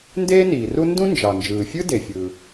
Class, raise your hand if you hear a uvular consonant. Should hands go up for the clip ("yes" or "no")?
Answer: no